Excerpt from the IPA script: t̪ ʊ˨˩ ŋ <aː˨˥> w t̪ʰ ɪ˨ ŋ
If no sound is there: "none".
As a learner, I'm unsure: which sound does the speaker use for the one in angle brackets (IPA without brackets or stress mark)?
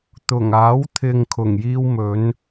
aː˨˥